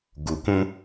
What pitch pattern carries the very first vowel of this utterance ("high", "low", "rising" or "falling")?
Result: low